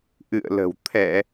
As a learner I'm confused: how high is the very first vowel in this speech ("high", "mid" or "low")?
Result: high